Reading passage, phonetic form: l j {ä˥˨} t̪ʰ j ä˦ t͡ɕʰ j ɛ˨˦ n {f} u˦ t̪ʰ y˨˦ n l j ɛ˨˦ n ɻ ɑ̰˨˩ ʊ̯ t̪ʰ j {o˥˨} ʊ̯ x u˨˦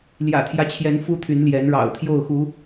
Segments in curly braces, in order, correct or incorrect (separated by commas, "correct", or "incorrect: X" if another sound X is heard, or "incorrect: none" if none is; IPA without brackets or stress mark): incorrect: ä̰˨˩, correct, correct